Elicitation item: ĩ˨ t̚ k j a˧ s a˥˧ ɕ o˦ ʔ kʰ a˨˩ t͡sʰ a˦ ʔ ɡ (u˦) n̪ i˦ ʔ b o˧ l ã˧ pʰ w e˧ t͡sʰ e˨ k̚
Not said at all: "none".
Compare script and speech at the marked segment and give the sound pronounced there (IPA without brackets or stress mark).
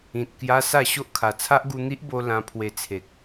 u˦